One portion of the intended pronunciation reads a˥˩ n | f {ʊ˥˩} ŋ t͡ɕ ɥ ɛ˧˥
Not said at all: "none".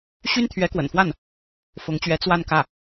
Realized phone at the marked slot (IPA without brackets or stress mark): ʊ˧˥